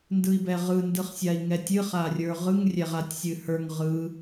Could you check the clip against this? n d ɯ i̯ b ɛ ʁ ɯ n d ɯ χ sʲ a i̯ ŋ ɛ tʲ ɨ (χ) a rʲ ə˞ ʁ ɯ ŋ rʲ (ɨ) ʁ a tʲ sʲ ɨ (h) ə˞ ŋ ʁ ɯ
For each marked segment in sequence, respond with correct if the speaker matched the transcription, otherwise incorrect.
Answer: correct, incorrect, correct

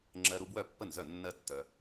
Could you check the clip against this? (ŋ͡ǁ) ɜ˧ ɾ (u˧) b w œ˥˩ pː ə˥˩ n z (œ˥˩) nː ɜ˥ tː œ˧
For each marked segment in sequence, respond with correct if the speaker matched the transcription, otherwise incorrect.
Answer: correct, correct, correct

